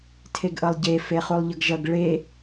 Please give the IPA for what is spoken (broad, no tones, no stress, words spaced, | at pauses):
tʰeɡʔʌlˠɟe feχulˠʎʌɡʒʌɡ ɭe